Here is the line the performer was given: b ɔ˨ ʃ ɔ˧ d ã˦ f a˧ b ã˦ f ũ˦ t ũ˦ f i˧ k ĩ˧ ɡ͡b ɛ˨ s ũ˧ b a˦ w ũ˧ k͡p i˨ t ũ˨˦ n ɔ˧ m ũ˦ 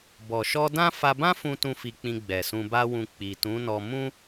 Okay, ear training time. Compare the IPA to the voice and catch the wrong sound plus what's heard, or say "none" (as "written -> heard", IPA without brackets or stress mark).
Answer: k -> k͡p